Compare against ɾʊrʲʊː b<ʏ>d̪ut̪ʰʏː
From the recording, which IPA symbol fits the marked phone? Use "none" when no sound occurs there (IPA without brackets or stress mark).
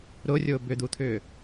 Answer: ʏ